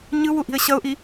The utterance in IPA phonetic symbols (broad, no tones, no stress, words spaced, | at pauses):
ɲɯwuʔi̤ə̯ ɕʌʊ̯ʔi